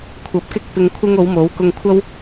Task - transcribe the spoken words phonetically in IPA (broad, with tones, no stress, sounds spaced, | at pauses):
kʷʰ ɐ˨ p̚ k ɪ˥ k̚ p ɪ˧ ŋ kʷʰ ɪ˥ ŋ o˨˥ w m o˨˥ w k ʊ˧ ŋ kʷʰ ɐ˥ w